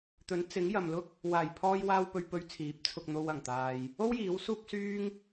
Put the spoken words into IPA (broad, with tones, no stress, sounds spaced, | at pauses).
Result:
t̪ ɵ˨˥ n t͡s ɪ˨˥ ŋ j ɐ˨ m l ʊ˥ k̚ | w aː˨˩ j pʰ ɔː˧ j w aː˧ w p ɵ˧ ɥ p ɵ˧ ɥ t͡sʰ iː˨˥ p̚ t͡sʰ ʊ˧ k̚ n̪ o˧ w ɐ˨˩ ŋ t̪ aː˨ j | o˥ w j iː˨˥ w s uː˥ p̚ s yː˥ ŋ